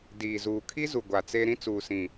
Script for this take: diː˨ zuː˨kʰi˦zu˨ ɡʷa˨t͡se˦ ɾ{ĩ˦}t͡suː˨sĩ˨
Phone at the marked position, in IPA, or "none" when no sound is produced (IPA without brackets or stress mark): ĩ˦